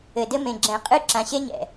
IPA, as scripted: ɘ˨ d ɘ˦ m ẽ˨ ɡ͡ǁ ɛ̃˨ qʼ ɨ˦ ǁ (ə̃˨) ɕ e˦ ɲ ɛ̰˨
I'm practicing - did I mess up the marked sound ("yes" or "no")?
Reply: yes